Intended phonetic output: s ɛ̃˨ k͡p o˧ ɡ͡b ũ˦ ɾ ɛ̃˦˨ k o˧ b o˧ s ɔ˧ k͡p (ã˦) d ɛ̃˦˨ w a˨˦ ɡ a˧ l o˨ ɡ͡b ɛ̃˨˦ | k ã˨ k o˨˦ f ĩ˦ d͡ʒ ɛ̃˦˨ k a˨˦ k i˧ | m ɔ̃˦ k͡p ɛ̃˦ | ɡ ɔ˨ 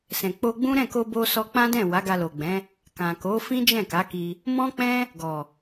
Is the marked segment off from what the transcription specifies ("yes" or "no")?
no